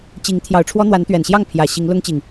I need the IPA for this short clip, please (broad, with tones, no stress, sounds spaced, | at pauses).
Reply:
t͡ɕ i˨˦ ŋ t̪ʰ j ɑ˨˩ ʊ̯ ʈ͡ʂʰ w ɔ˦ n̪ w a˨˦ n t̪ ɥ ɛ˨˩ n ɕ j ɑ˥˨ ŋ pʰ j ä˨˩ ɕ i˨˦ ŋ l ʊ˦ ŋ t͡ɕ i˨˩ ŋ